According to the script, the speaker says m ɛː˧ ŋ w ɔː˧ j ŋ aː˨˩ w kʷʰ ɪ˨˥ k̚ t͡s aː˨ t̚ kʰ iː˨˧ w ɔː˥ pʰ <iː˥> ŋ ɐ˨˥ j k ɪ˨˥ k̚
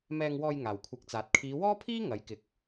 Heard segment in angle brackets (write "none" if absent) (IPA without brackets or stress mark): iː˥